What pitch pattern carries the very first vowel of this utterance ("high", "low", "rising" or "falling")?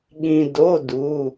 low